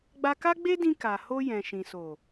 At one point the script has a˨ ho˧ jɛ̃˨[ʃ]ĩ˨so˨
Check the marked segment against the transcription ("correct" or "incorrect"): correct